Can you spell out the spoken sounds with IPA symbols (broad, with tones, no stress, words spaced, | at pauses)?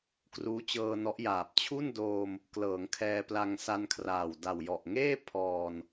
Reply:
kruː˦˥t͡ɕɤː˧nɔ˦˥ʔjaː˨˩p̚ t͡ɕʰu˥˩ndoː˧m | klɤː˩˦ŋkʰɛː˧pla˧ŋ sa˧nkʰraː˨˩w da˨˩wjɔ˨˩ʔ ŋeː˥˩ pʰɔː˨˩n